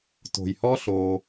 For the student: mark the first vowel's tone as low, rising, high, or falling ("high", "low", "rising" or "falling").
low